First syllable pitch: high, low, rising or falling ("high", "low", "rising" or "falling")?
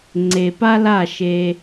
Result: low